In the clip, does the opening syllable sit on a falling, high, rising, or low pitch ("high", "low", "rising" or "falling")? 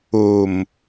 low